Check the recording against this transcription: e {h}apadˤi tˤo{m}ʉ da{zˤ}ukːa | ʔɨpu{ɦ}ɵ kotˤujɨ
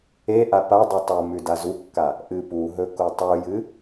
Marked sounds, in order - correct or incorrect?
incorrect: ʔ, correct, incorrect: z, correct

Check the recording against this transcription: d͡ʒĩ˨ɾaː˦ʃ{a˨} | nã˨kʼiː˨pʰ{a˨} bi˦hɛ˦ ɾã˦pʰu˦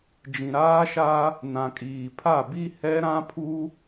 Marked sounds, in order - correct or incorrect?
incorrect: a˦, incorrect: a˦˨

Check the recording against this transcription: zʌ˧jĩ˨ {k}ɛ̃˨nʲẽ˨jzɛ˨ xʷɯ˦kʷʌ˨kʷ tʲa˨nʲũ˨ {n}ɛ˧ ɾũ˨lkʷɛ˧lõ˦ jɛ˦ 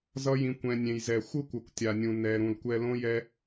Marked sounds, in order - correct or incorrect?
incorrect: kʷ, correct

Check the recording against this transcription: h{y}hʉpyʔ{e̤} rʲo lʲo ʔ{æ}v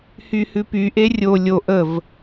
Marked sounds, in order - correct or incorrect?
correct, incorrect: e, incorrect: ə

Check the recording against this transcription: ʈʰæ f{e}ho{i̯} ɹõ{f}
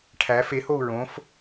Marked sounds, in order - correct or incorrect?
correct, incorrect: u̯, correct

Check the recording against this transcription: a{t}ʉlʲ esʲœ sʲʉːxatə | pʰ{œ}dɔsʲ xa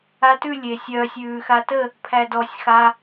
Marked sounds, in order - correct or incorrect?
correct, incorrect: æ

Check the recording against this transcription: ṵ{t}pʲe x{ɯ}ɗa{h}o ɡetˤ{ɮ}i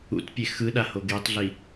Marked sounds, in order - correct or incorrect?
correct, correct, correct, correct

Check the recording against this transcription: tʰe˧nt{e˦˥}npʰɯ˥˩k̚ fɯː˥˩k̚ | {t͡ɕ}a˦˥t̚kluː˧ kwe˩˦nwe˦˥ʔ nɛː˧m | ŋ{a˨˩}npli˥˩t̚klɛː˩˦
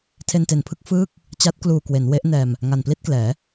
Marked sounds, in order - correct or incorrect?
incorrect: e˨˩, correct, correct

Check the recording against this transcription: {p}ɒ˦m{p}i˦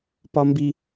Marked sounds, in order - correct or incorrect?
correct, incorrect: b

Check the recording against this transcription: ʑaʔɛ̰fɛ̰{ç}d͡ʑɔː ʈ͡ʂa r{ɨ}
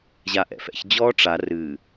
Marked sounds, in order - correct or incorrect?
correct, correct

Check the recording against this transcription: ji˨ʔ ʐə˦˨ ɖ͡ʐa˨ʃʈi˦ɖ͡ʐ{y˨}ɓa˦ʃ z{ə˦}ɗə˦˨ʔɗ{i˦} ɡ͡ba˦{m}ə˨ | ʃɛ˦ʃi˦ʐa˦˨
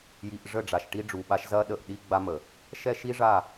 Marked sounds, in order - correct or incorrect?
incorrect: u˨, incorrect: ɐ˦, correct, correct

